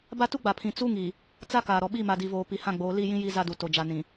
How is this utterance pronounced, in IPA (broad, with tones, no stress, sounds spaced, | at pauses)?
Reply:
b a˦ t u˦ ɡ͡b a˨ pʰ ĩ˨ t͡s u˦ ŋ i˨ | t͡s a˦ k aː˨ ɾ ɔ˨ ɓ i˦˨ m a˨ d i˨ v oː˨ p i˨ h ã˦˨ ɡ͡b oː˨˦ l i˦˨ j ĩ˦ j i˦ z a˦ d u˨ t o˨ d͡ʒ a˨ n ĩ˨